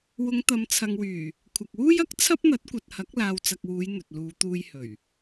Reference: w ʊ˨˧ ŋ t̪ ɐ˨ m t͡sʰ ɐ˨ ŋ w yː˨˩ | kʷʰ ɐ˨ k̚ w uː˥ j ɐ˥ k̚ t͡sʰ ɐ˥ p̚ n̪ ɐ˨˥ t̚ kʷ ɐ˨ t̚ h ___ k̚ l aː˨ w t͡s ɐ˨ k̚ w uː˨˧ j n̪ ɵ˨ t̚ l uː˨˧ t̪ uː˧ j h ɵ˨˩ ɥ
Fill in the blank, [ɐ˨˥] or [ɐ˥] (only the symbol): ɐ˨˥